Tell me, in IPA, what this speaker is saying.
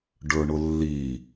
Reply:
ɖə˞ɳʊlːi

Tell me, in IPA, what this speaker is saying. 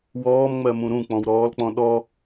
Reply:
wɔːmŋ͡mɜmũ ɾũk͡pɔ̃wɾɔːlk͡pɔ̃ ɗɔ

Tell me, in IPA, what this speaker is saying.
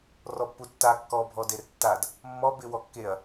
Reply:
rɔpːutːa kːɔ bʱɔdertːad | mːɔ bɪ wɔkːeɐ̯

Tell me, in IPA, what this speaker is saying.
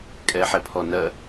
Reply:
kʼɛħɛpʰɔ nɜ

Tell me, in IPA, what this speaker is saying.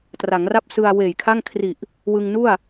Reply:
tra˩˦ŋra˥˩p̚sɯ˧a̯ weː˨˩jkʰa˥˩ŋ kʰri˨˩ʔ | wɯ˧ŋnu˥˩a̯

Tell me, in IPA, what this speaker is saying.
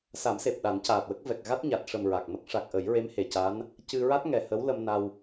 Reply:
sa˨˩˦mse˨˩p̚ ɗa˨˩˦ncaː˨˩t̚wə˦˥k̚ vɛ˨˩k̚ɣa˦˥t̚ ɲa˨˩t̚ʂə˨˩m ɹa˨˩k̚mə˦˥k̚ ʂa˨˩k̚ʔə˨˩˦jɹe˧˥m he˨˩ca˧˥n | cɨ˧ ɹa˦˥t̚ŋɛ˨˩ hə˧˥wlə˧mna˧w

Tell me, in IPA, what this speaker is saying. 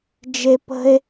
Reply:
d͡ʒe˦ pə̤˦e̯

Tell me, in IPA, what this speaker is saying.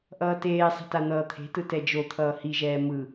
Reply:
ʔʌːteːsˤe̤ tan̪ʌːt̪ʰe̤tɯ tɛd͡ʒot̪ʰʌː hiʒɛː mɯ

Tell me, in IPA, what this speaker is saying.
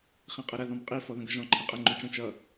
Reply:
χĩqʼɐɾɐ ðɔ̃mqʼi fɔðə̃ɡʌʒɔ̃ ǃʰĩqʼə ŋ͡ǃut͡ʃə̃ t͡ʃʌ

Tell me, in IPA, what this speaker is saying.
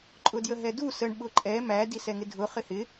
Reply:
ǃʼʊdjəɦɛdu səɳ ɓʊǃʼɛ mæ disɛŋɪdʱʊ χɪhɪ

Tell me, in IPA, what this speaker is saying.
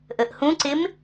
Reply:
ʔəʔhũǀɪm

